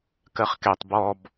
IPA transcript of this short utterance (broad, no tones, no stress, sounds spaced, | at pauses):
k ɜ χ k ɛ tˤ b ɔ b